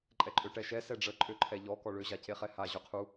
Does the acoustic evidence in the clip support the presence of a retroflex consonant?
yes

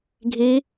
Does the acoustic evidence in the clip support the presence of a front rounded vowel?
no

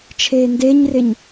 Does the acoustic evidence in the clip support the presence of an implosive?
no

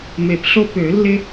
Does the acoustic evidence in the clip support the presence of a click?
no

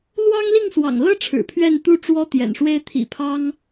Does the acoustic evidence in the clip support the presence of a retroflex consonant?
yes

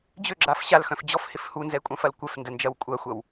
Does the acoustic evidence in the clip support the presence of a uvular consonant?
no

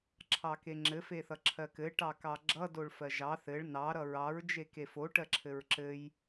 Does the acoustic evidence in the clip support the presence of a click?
yes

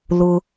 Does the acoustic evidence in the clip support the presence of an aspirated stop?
no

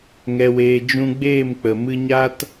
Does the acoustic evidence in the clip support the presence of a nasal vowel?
yes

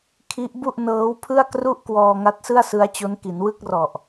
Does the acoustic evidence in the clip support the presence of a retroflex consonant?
no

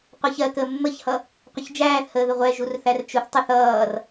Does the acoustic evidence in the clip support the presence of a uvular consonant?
yes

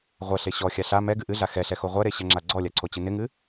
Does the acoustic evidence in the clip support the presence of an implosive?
no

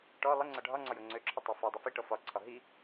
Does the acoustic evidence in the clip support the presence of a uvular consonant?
no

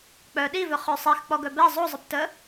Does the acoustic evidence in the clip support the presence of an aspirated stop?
no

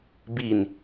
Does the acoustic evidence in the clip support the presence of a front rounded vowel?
no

